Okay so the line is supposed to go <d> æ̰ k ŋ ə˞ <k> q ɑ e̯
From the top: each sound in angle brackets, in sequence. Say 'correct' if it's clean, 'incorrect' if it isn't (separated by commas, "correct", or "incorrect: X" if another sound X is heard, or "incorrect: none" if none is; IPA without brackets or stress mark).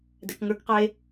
correct, correct